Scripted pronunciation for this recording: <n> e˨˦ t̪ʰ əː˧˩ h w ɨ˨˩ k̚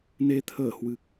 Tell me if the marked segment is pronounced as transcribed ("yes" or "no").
yes